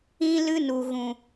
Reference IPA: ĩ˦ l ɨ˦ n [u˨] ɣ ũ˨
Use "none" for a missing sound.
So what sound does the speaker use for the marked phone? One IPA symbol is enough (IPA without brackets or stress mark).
u˨